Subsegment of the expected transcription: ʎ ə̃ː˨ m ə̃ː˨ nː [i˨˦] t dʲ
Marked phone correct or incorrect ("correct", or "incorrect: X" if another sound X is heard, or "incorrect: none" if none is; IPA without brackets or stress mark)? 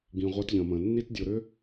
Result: incorrect: i˧